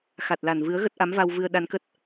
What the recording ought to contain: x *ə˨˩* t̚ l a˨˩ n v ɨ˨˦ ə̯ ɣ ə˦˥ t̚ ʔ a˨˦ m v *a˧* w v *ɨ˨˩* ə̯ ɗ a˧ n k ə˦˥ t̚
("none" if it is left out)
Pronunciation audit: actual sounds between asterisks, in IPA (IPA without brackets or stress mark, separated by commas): a˨˩, a˧, ɨ˧